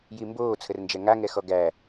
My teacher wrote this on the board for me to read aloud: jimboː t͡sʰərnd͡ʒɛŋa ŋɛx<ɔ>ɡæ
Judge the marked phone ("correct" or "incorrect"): correct